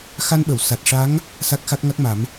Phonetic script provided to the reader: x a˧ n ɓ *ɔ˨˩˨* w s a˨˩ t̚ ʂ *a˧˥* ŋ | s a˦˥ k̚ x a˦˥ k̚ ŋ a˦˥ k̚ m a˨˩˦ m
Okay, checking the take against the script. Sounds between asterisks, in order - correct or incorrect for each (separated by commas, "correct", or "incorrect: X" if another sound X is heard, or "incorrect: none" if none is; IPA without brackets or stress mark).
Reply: incorrect: ə˨˩˨, correct